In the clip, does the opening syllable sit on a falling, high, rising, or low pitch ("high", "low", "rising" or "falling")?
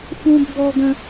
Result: high